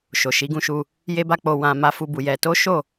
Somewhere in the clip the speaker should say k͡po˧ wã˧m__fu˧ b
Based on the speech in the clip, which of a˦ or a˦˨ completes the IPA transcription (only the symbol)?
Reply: a˦